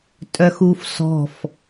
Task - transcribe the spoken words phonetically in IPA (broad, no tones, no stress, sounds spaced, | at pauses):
tʼ œ x u f s ɔ̤ f